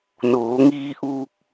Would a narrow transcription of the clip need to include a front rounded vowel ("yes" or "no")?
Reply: no